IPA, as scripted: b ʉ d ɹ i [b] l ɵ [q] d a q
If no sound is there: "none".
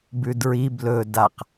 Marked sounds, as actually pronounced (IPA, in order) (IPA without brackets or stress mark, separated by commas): b, none